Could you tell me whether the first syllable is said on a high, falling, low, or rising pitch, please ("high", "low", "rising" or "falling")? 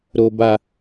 high